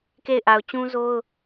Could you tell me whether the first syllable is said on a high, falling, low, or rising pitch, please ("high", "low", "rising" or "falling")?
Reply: falling